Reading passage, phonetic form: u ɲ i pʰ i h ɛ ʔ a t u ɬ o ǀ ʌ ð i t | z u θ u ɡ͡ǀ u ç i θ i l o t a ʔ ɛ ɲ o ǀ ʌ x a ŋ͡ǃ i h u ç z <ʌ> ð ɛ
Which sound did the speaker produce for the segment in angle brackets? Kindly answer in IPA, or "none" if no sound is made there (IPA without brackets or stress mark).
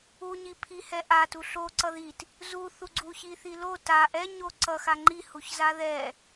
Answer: a